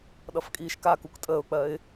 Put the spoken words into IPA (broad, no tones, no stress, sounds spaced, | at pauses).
ɗ ʌ f kʼ iː ʃ k a k u k tʼ əː ʊ̯ k͡p ɜ ɪ̯